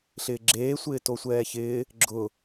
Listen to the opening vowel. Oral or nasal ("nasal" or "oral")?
oral